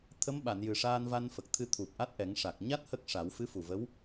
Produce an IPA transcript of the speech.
t̪ʰ ə˧˥ m ɓ a˨˩˨ n j ɨ˨˩ ʂ aː˧ n v a˧ n f ə˨˩ k̚ t̪ʰ ɨ˧ t̪ʰ u˨˩ p̚ ʔ a˦˥ t̚ ʔ ɛ˨˩˦ ŋ ʂ a˨˩ k̚ ɲ a˦˥ t̚ h ə˦˥ k̚ ʂ a˨˩˦ w f ɨ˧˥ f u˨˩ v ə˧˥ w

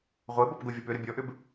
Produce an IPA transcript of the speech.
ʁʷ e b ɔ p ɡ o vʲ ɔ p ʏ ɾ ə bʲ ɔ ʔ ʏ b

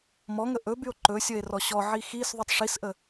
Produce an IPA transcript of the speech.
m ɔ ŋ ə ʔ ɵ b y o̯ ǃ ɵ sʲ ə e̯ r ɔ ɕ ɔ ʕ i x i s ðˤ y tˤ ʂ i s ʔ ə

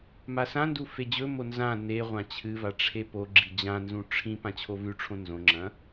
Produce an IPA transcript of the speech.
m a s ã n d u f e d͡ʑ ɵ m o n z ã n e ʁʷ ã t͡ɕʰ ɨ v a ʈ͡ʂʰ e p o ɡ͡ǁ i d͡ʑ ã n z ũ ʈ͡ʂʰ ĩ p ã t͡ɕʰ o v ʉ ʈ͡ʂʰ õ n z õ ŋ͡ǁ ɐ̃

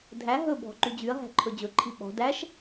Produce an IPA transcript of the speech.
dʱ æ ɦ ɵ bʱ ɔ̤ ǃ y d͡ʑ y ɐ̯ ɦ æ̤ ǃʰ ɵ d͡ʑ ɵ ǃʰ i ɓ ɔ̤ d æ ʃ

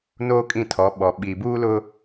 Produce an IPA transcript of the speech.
n oː˦ kʼ ĩ˦˨ tʰ ɔ˨˦ ɓ ɔ˨ ɓ i˨ b uː˦ l ʊ˦

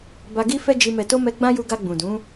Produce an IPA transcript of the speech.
b a˧ ɡ i˦ f ɛ˦ d͡ʒ i˧ m ɛ˨ t o˧ m ɛ˧ ɡ͡b ã˦ j u˧ ɡ a˧ ɡ͡b ũ˨ d ũ˨˦

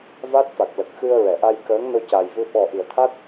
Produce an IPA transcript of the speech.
v a˦˥ t̚ f a˨˩ k̚ l ə˨˩ k̚ x ɨ˧ ə̯ ɹ ɛ˨˩˨ ʔ a˧ j k əː˧˥ ŋ n o˧ c a˨˩ j v ɨ˧ ɓ ɔ˨˩ ʔ i˨˩˨ ə̯ t̪ʰ a˦˥ t̚

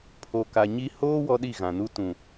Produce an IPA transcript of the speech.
pʰ o˨ k a˨ ɲ i˦ h oː˦ w ɔ˦ ɗ i˦˨ ɣ ã˨ n u˦ t ũ˨

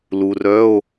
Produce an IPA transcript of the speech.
l u˨ r œ˧˥˧ o̯

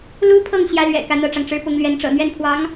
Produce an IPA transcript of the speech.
l u˥ pʰ ɤ˥˩ ŋ ɕ j ä˥ l ɥ ɛ̰˨˩ k ä˥˧ n̪ ɤ˥˩ ʈ͡ʂ ɑ˩ ŋ ʈ͡ʂ ɻ̩˥ p ʊ˧˥ ŋ l ɥ ɛ˧˥ n ʈ͡ʂ ɤ̰˨˩ n̪ ɥ ɛ˥˩ n pʰ w ɑ˧˥ ŋ

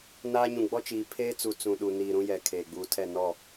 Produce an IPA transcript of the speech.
n aː˦ ɲ ũ˨ ɡ͡b ɔ˦ t͡ʃ iː˨ pʰ eː˦ t͡s u˨ t͡s ũ˨ ɗ u˨ n iː˨ ɾ ũ˦ j ɛ˨ kʰ eː˨ ɡ͡b uː˨ tʰ ɛ˦˨ n ɔ˦˨

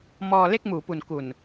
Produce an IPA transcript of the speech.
m ɔː˧ l e˥˩ k̚ m uː˩˦ p u˨˩ n k u˨˩ n

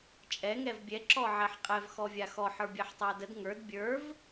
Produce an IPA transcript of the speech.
t͡ʃʼ ɛ ŋ ɛ v bʲ ɛ ǁ ɔ ʕ ɛ ħ qʼ ɛ v x ɔ vʲ a x ɔ ħ ə˞ bʲ ɛ ħ tˤ a d ə d ŋ ə˞ d bʲ ə˞ v

